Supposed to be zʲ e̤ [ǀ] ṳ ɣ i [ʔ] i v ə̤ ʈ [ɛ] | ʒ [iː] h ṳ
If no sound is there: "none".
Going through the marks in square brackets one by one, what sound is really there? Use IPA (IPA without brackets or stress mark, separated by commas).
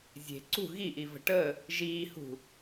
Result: ǀ, ʔ, ə, iː